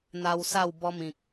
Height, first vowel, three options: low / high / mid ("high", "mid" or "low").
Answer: low